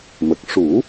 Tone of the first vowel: low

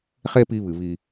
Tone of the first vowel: high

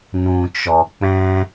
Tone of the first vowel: low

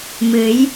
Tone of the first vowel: rising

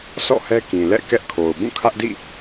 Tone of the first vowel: falling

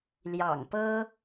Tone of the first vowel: low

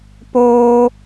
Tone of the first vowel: high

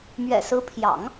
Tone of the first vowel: low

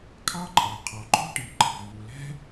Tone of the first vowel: high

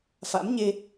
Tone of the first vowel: rising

